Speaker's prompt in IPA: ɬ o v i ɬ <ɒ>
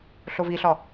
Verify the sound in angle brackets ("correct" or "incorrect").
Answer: correct